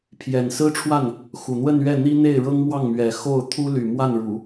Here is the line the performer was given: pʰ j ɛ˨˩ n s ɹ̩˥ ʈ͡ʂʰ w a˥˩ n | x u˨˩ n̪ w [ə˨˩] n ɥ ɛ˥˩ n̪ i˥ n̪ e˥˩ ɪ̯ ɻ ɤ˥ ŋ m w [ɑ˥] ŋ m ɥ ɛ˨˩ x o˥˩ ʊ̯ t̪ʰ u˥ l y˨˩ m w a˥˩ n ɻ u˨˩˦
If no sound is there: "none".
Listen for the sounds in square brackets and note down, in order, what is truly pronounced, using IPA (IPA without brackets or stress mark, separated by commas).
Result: ə˥˧, ɑ˥˩